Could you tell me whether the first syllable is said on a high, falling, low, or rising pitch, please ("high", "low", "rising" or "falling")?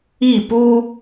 falling